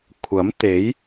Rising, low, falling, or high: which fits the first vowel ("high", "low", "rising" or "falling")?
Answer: rising